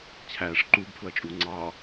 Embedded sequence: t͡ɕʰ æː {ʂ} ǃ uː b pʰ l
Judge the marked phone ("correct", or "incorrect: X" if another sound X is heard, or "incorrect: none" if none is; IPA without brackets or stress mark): correct